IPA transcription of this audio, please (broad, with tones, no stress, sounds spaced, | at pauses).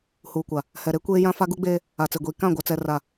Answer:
h uː˨ kʷ a˨ | h ɛ˨ ɾ e˦ kʷ eː˦ j ã˦ f a˦ ɡ u˦ ɡ͡b eː˦ | a˨ t͡s e˨ ɡʷ iː˨ k ã˦˨ ɡʷ a˦ t͡s ɛ˦ r a˦˨